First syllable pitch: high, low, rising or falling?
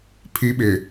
high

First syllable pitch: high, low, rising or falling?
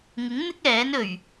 rising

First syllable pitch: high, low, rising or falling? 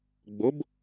rising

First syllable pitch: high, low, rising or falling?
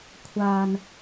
low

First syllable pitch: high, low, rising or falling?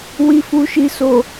low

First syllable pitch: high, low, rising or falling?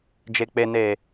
low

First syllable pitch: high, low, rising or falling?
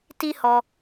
high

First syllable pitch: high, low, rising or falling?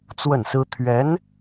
falling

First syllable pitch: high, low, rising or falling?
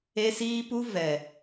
high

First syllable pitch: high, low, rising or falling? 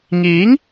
rising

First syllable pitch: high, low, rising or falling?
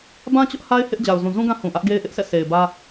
high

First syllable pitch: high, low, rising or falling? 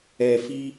low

